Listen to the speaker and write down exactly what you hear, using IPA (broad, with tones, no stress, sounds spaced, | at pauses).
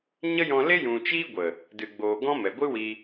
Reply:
ɲ ə˦ j ɔ̃˧ l e˦ j ũ˨ t͡ʃ iː˦ ɡʷ ə˨ | d ɨ˨ ɡ͡b oː˨ ɡ ɔ̃˦ m ɛ˨ ɡʷ ɨ˦ w i˧